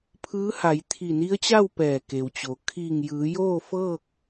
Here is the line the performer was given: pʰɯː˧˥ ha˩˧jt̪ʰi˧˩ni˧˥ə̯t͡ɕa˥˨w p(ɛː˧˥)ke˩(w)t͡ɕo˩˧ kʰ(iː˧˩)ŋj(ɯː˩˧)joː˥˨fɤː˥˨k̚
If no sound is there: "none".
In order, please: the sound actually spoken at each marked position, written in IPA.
ɛː˧˩, w, iː˧˩, ɯː˩˧

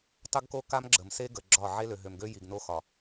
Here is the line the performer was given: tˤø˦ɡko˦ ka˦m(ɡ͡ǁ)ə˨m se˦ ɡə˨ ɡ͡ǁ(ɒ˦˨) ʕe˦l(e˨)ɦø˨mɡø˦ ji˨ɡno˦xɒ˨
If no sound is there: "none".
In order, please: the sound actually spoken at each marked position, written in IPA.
ɡ͡ǁ, ɒ˦˨, ø˨

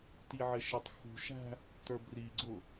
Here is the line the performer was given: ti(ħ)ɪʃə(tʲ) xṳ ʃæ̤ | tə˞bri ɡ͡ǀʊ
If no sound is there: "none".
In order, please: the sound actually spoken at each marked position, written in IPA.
ʕ, tˤ

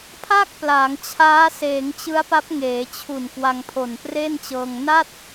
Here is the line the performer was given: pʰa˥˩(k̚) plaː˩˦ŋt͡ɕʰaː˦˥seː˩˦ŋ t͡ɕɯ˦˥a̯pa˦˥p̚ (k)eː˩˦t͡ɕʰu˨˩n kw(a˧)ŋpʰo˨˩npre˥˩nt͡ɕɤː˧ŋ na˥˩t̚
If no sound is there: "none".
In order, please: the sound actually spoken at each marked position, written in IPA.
k̚, ŋ, a˧

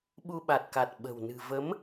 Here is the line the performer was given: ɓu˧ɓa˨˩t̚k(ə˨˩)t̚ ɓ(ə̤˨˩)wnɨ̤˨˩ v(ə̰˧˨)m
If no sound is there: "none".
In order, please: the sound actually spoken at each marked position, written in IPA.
a˨˩, ə̤˨˩, ə˨˦

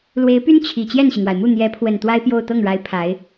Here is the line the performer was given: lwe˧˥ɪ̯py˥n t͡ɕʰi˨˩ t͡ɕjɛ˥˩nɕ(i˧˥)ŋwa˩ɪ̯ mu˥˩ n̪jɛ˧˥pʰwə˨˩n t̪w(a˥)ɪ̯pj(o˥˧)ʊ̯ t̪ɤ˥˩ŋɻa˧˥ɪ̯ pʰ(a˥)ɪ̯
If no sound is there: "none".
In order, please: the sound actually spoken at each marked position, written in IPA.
i˩, a˥, o˥˧, a˧˥

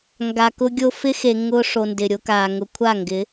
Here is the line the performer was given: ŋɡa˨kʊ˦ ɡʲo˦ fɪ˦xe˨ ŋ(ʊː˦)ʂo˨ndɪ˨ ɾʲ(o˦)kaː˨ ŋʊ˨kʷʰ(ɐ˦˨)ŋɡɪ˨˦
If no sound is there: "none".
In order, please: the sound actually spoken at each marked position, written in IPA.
ʊː˦, o˦, a˦˨

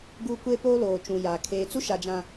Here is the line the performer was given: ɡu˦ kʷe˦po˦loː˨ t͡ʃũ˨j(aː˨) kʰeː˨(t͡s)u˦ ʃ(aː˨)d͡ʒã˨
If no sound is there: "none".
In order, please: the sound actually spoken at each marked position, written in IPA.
aː˨, t͡s, a˨

